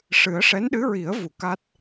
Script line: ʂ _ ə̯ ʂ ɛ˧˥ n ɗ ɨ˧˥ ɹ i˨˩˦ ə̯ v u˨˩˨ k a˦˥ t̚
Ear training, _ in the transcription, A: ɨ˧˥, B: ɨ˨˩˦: B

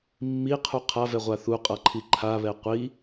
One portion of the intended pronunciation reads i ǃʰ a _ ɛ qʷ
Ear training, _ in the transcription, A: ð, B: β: B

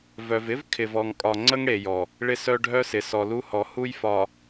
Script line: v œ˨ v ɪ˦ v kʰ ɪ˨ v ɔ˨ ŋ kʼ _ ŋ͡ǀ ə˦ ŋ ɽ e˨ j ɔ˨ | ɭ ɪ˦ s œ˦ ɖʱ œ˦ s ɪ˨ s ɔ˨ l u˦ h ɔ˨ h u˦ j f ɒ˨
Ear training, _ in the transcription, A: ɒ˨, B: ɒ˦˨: A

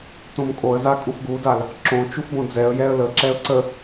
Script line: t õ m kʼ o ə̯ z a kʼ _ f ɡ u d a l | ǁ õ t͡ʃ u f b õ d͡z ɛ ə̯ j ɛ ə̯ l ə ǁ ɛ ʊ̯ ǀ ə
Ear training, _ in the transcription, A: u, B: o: A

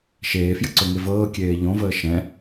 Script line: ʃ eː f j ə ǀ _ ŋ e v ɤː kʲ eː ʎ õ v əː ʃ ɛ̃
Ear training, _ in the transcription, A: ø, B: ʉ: A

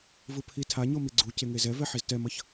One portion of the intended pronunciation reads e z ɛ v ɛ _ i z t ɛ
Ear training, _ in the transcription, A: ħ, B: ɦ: A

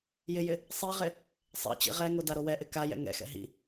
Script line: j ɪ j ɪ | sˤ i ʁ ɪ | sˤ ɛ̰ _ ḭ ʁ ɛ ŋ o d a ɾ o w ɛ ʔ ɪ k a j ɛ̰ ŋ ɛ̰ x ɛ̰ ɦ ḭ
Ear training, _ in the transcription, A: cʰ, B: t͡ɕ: B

